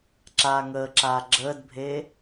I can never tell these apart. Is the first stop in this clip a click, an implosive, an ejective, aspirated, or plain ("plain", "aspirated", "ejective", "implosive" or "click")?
click